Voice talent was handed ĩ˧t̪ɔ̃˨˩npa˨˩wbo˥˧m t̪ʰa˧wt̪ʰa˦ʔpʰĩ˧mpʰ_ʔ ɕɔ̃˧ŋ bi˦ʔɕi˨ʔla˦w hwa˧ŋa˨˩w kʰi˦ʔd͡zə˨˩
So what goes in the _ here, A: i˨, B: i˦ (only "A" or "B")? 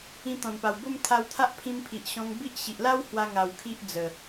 A